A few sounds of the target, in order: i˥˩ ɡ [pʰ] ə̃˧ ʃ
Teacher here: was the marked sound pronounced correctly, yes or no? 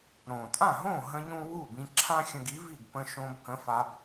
no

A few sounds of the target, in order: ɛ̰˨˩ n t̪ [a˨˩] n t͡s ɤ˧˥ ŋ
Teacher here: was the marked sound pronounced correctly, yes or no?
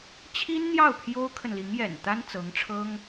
no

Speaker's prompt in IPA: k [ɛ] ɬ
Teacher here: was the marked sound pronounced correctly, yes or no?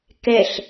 yes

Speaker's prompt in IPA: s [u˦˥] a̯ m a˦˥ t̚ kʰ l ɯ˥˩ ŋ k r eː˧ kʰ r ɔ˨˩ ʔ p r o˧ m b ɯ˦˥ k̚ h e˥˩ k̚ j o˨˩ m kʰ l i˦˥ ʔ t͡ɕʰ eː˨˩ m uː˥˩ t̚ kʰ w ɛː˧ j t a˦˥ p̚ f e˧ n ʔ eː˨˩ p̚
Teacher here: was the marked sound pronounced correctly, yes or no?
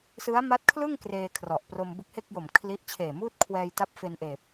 no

